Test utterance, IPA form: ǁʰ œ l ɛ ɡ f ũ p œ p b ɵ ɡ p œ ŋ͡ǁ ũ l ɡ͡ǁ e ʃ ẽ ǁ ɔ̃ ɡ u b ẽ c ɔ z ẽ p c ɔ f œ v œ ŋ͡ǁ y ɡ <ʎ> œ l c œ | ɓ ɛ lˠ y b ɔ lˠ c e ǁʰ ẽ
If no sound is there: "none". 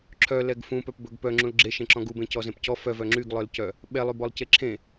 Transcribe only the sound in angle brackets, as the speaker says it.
lˠ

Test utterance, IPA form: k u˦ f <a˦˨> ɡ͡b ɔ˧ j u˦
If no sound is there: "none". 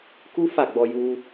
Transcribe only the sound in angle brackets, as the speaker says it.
a˦˨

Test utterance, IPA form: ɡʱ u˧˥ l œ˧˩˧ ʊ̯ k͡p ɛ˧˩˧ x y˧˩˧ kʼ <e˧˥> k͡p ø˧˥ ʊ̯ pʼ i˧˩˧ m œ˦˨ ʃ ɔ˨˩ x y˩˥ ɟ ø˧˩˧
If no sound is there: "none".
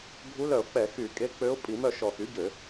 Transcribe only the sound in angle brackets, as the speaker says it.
e˧˥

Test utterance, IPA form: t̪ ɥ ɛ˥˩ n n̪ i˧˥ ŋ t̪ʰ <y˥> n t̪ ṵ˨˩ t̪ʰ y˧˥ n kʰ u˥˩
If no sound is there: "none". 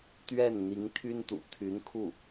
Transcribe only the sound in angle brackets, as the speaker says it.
y˥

